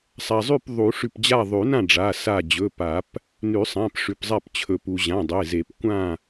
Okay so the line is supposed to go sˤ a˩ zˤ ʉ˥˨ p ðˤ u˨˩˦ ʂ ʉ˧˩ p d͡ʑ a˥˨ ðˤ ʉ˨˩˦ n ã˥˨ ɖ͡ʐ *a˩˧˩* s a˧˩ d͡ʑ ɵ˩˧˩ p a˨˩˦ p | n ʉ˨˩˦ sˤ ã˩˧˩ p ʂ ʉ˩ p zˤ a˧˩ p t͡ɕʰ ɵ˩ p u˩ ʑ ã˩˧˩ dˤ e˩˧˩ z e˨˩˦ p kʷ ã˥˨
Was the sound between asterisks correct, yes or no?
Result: yes